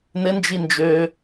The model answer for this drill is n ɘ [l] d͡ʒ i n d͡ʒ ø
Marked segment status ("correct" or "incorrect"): incorrect